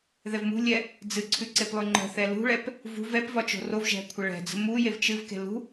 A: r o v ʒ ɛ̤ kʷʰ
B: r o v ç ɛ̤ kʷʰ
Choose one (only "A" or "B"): A